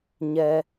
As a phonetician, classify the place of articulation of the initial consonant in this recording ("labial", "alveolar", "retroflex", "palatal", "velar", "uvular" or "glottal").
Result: palatal